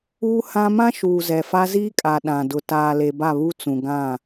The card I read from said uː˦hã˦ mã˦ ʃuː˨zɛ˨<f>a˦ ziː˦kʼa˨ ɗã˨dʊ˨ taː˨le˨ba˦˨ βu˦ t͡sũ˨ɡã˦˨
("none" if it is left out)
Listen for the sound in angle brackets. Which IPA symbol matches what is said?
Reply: f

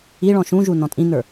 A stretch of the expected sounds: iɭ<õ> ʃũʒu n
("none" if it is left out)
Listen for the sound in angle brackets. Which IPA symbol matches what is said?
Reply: ɔ̃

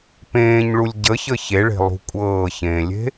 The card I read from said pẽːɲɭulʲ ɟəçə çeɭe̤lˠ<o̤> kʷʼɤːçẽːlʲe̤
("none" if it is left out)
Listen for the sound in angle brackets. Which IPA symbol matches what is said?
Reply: ṳ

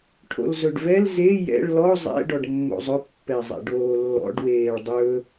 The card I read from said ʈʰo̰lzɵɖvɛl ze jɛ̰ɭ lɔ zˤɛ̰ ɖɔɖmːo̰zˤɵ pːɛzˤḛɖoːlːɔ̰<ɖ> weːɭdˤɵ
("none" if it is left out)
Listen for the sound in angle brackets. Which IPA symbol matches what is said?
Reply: ɖ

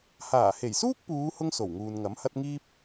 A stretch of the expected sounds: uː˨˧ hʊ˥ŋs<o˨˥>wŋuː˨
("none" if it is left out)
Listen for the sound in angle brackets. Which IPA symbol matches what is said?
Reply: o˨˩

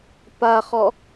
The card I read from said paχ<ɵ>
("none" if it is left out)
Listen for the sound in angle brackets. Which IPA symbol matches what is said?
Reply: ɔ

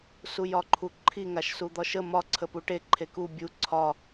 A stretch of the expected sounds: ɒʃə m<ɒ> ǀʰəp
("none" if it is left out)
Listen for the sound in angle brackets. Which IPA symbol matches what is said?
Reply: ɒ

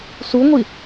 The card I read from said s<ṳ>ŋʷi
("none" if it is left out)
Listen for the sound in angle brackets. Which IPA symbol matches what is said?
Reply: u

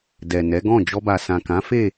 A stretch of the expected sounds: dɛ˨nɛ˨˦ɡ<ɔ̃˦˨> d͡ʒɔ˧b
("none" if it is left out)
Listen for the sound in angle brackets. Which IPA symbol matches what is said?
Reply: ɔ̃˦˨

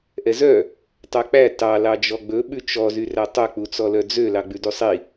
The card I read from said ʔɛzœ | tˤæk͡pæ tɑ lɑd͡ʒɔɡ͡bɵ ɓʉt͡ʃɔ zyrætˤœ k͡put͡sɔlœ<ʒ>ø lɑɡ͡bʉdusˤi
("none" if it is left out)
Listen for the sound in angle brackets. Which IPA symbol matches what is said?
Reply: d͡z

